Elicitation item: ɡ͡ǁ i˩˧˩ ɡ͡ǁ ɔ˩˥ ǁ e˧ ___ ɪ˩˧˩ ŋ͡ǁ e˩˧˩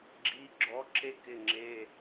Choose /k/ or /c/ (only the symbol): k